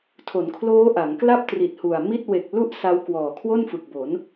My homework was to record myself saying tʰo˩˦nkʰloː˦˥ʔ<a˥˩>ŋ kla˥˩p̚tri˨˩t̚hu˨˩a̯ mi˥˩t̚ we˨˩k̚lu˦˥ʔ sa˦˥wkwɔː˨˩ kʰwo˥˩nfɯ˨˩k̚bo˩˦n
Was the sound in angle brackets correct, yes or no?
no